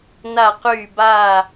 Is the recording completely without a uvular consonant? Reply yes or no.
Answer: no